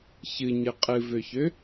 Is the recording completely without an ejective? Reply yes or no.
no